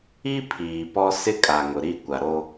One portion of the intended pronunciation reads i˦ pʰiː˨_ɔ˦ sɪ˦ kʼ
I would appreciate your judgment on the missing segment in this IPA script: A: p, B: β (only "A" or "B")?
A